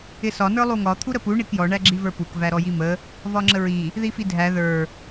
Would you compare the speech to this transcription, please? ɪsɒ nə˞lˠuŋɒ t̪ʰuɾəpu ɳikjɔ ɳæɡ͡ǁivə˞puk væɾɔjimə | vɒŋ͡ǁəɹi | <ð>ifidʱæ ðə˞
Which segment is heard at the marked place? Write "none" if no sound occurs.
ð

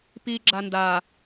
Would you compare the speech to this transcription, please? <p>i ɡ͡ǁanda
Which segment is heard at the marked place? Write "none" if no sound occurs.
p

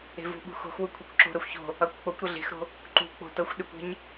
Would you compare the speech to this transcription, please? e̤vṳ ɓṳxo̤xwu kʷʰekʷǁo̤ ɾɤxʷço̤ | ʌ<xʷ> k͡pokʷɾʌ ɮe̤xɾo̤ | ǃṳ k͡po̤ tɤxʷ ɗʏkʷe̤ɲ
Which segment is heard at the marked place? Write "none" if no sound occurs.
kʷ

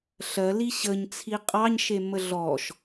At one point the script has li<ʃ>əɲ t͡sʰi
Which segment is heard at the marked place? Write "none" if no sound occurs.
ɕ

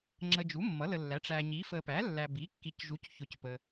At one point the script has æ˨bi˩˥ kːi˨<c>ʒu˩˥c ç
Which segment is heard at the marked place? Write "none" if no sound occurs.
c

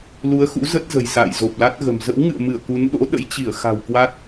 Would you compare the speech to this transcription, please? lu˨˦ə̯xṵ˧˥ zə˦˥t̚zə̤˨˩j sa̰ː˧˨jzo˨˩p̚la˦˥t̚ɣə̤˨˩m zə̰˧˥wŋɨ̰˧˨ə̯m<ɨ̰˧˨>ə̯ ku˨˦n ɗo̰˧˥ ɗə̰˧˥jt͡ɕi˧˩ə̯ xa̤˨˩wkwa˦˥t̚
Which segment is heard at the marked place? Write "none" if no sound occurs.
ɨ˧˩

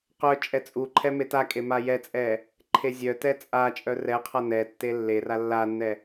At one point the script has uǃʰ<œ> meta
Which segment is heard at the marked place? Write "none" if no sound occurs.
ɛ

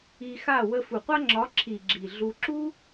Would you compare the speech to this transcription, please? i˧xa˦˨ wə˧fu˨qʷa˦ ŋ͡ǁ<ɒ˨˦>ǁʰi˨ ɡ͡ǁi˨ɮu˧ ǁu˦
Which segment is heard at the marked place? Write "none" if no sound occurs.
ɒ˨˦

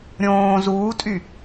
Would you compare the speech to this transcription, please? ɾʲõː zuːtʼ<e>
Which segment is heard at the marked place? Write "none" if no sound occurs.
y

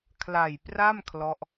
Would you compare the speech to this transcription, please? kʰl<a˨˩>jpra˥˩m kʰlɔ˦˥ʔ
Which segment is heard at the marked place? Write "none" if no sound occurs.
a˨˩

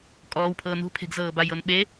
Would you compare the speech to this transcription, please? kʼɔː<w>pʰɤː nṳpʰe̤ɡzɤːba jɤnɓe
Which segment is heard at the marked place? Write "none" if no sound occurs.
w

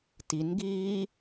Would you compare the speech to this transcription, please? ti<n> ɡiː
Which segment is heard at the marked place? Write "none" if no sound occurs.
n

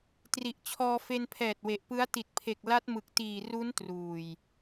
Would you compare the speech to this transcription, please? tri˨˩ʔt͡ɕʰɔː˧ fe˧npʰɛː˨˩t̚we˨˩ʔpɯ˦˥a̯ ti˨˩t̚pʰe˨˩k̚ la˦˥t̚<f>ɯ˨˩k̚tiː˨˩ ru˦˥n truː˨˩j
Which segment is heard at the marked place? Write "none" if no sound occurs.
m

